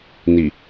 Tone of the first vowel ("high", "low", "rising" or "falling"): low